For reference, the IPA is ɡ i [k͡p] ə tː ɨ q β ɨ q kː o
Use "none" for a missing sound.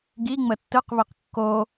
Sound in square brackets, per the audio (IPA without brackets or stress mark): ŋ͡m